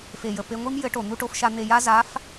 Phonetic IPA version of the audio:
f e˩ j ə˩ p e˧ ŋʷ i˥ m j ɘ˧˥ ʈ o˩ n̪ u˧ ʈ o˧ f ʃ a˧ n̪ e˧ j a˥ z a˧˥ f

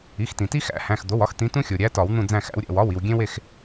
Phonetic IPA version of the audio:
i˩˧˩ x t ĩ˩ t i˦ x æ̰˨˩˦ h æ̃˩˧˩ x d̪ o˩˧˩ w ɒ˦ x t̪ ĩ˨˦ t ũ˦ xʲ o˩ ɾʲ æ˨˦ t ɒ˨˩˦ w n̪ ũ˦˨ d͡z æ̃˦˨ x æ̰˨˦ w ɾʲ æ̰˩ w ɒ˩˧˩ w i˩ w ɡʲ ẽ˦ w e˦˨ x

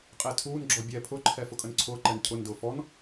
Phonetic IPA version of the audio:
qʼ ɛ tʰ uː n ɡ͡ǁ ɔ bʲ ɛː pʰ ʊ ǃʰ ɛ f ʊ kʼ ə n ǀʰ ʊː ǃ ɛ n cʰ ʊ n d ʊː f ɔ n

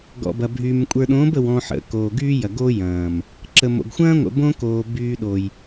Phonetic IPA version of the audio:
ɡ ɔ̰˨ b ɐ˨ bʱ yː˨ m kʷʼ ə˞˨ ɗ õː˨˦ b ə˨ w ɔ̃˨ ħ ə̰˨ k oː˨ ɡ yː˦ j ɐ˨ ɡ o˦ j ɐ̃ː˨ m | ǁ ə˨ m o̰˨ ɡ xʷ ɐ̃ː˦ ŋʷ ə̰˨ b õ˦ k oː˨ b yː˦ ɗ o˨ j

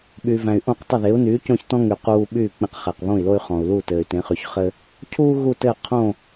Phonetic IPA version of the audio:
ɓ y˩ v æ̃˩ y̯ ʔ õ˥˩ q tˤ ɘ˥˩ ð e˩˥ u̯ n yː˩˥ c õ˥˩ ç t ɔ̃˥ ŋ y˩ q uː˧ ɓ yː˥˩ k͡p ẽ˧ q χ æ˩ q β õ˥˩ i̯ l o˥ y̯ χ ɔ̃˩ u̯ l u˥˩ t ɘː˩ y̯ t ẽ˩˥ χ y˩ ç χ ɘ˥ | cʰ uː˥ ɣ u˥˩ t ɘː˥˩ qʰ õ˥˩

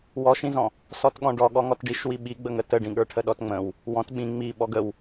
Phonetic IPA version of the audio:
w ɔ ʃ ĩ z ɔ̃ | s ɔ t ɠ ɔ̃ ɖ ɔ ɠ ɔ ŋ ɔ t ɖ i ʃ w i ɓ i ɡ͡b ə ŋ ə t ə ɖ ĩ ɠ ə˞ ʈʰ ə ɗ ɔ t ŋ͡m ə̃ w | w ɔ̃ t ɓ ĩ ŋ͡m i ɓ ɔ ɡ ə w

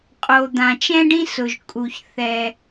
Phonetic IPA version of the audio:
qʼ o˩ d̪ ã˩ t͡ʃ ɛ̃˥ ɖ ĩ˥ s ʊ˩ ʒ kʼ u˩ ç θ ɛ˩

